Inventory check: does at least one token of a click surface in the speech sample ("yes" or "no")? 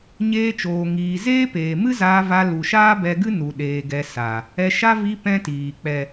no